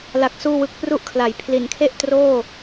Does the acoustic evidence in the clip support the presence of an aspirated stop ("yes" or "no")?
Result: yes